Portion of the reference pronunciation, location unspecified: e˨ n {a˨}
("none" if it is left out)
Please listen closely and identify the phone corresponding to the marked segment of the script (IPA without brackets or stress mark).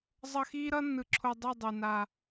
a˨